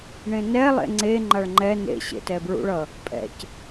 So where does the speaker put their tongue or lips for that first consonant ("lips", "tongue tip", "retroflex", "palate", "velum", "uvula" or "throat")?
retroflex